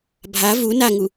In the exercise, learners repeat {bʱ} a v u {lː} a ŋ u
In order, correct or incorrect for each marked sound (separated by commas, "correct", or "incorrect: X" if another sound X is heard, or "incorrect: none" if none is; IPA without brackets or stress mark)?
correct, incorrect: n